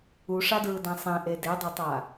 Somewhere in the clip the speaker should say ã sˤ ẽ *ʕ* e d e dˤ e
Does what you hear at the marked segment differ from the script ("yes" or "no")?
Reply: yes